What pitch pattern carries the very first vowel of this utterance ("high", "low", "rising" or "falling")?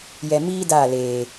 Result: low